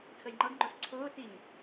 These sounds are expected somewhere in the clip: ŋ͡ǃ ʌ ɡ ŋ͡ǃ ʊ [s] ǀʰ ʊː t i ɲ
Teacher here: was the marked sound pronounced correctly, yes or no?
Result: yes